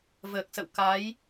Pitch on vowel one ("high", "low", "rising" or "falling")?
low